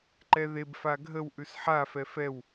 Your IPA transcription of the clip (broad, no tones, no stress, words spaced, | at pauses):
ǃɛðeb faɡʱəw ʔʉsħa fɛfɛw